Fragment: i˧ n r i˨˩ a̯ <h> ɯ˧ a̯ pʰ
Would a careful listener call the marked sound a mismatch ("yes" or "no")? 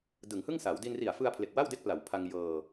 yes